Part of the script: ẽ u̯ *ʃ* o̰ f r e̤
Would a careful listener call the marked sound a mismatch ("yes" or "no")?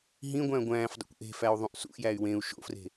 no